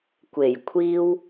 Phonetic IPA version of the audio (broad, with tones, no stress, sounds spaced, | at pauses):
kʷ e˨˩ j kʷʰ iː˥ w